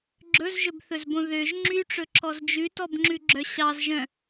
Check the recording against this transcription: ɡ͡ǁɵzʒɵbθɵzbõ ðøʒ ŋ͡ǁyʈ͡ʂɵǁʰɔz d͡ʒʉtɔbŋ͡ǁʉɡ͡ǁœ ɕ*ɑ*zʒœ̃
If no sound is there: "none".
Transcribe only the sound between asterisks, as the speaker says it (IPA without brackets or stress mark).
ɑ